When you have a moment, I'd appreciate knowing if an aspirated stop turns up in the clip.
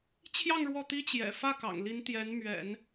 yes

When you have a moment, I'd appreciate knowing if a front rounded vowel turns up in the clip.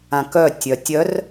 yes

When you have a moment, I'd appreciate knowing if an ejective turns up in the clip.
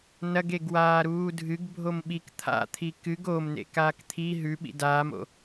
no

